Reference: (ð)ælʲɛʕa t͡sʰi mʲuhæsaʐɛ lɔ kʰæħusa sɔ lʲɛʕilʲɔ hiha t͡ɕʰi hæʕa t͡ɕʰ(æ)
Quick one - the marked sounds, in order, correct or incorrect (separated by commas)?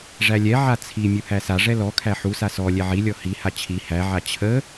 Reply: incorrect, incorrect